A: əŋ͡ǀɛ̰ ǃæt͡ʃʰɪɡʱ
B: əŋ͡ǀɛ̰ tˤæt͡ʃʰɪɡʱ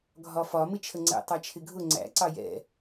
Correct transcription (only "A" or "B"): B